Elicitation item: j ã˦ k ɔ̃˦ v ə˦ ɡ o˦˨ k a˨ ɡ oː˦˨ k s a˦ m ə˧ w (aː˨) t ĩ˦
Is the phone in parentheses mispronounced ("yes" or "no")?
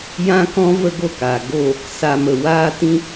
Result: yes